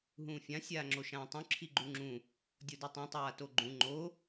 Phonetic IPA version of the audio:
ɦũːfʲã sʲaːŋ͡ǁoʃãːtˤũ ǁʰiɡ͡ǃuŋ͡ǁũ | dʲodʉtˤõ tˤaːtoɡ͡ǃũ ŋ͡ǃo

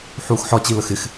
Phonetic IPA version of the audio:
ħuːxħɒ t͡ɕiləxɪx

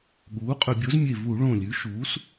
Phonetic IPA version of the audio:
ɠuː˩˥qʼɵ˧˩˧bʲo˩˥zmʲe˧˩ vu˧˩˧ɭõ˧˩lʲʉ˩˥ʃuː˩˥s

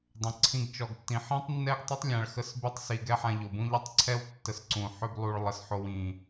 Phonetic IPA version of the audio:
dˤə̃˨ ǀʰĩ˦ɡt͡ʃɔ˧ɡtːĩ˧ ħĩ˦tˤnːɛ˦ɡtˤə˦tˤ lʲã˧ɭxə˦s by˦tˤsi˧ ɡɛ˦ħã˧ʎo˨bũ˦ ʎə˦tˤǀʰɛ˦w tːə˧sǀũ˨ ħø˦blˠu˧ɭ lˠə˧sħo˧w ĩ˨

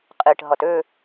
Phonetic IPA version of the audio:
qʼiʈɦʌt ø

